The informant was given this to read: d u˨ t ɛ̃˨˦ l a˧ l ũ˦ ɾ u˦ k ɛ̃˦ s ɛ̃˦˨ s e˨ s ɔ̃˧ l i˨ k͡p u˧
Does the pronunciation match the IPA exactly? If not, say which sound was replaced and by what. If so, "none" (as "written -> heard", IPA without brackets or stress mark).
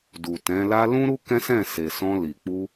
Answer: none